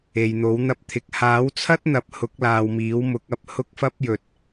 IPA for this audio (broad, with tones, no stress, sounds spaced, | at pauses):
e˨ j n̪ o˨˥ w n̪ ɐ˧ p̚ t̪ʰ ɪ˨ k̚ h aː˨˥ w t͡sʰ ɐ˥ t̚ n̪ ɐ˨˥ p̚ h ʊ˨˥ k̚ l aː˨ w m iː˨˥ w m ʊ˨˥ k̚ ɐ˨ p̚ h ʊ˥ k̚ f ɐ˥ p̚ j ɵ˨ t̚